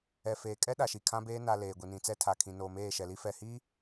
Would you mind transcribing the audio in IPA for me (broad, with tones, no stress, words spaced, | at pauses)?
ɛ˨feː˨kʼɛ˦ ɗa˨ʃi˨kʰã˦beː˦ na˨ leː˨ɡʷi˨nĩ˨ t͡sɛ˦tʰa˨kʰĩ˨ noː˨meː˦˨ʃɛ˨li˦ fɛ˨hi˦